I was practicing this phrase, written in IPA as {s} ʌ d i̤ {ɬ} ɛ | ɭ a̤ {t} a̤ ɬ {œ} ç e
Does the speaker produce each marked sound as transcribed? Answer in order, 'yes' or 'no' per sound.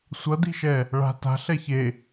no, no, yes, no

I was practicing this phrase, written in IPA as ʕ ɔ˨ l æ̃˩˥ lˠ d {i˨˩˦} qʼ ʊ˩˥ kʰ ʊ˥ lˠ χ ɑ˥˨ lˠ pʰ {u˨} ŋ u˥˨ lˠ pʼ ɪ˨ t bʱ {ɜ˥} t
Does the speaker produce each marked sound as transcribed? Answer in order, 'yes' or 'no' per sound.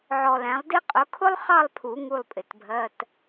no, no, no

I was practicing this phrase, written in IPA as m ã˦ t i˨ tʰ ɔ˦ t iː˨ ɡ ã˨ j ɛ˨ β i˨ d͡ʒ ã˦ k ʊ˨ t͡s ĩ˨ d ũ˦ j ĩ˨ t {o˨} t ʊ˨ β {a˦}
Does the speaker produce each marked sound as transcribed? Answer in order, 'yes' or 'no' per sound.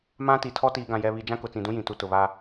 no, yes

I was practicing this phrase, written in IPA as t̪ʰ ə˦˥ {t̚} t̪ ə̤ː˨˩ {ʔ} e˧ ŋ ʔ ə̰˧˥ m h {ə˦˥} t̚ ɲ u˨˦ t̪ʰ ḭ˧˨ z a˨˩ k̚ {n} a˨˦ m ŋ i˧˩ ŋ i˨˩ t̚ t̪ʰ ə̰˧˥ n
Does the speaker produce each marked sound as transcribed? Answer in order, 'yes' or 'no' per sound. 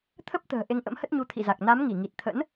no, yes, yes, yes

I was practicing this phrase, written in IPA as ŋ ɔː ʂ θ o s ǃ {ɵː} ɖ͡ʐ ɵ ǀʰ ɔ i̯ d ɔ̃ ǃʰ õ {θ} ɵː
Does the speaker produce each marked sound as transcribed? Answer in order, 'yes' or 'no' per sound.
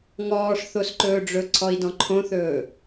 yes, yes

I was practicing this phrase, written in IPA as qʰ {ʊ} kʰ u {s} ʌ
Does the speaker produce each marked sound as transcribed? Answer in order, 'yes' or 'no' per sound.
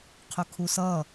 yes, yes

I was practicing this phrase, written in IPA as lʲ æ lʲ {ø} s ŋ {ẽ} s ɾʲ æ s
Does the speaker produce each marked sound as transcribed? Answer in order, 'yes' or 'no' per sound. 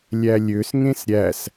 yes, yes

